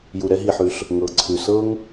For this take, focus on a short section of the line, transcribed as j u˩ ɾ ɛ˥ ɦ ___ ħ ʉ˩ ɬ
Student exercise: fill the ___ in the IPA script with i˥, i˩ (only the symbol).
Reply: i˩